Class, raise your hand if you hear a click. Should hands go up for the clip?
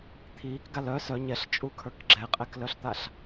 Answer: yes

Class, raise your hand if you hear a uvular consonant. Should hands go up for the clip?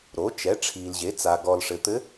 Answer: no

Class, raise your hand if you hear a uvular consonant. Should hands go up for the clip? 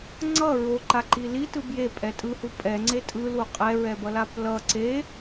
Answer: yes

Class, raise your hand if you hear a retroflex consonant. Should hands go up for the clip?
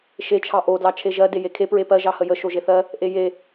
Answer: no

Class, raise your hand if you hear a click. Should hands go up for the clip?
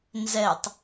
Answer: no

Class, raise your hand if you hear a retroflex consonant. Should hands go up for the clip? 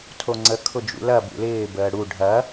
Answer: yes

